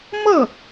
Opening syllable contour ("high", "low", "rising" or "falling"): falling